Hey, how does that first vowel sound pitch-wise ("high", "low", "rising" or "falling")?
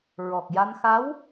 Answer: low